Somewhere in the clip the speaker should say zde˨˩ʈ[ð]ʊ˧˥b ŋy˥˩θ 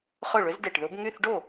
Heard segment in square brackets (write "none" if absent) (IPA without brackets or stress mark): ð